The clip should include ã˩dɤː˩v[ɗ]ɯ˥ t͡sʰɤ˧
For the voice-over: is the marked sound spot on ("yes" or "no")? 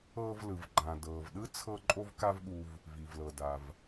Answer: yes